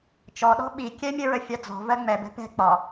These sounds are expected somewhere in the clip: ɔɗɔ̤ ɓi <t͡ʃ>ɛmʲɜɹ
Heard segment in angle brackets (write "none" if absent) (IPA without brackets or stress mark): kʲ